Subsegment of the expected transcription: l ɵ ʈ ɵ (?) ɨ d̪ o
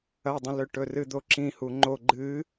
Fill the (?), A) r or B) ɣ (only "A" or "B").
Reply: A